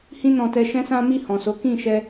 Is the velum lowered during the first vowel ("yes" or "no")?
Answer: yes